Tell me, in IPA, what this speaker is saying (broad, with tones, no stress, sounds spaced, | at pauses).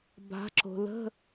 b a̤˩˧ ǁ o̤˩ l ə̤˧˥˧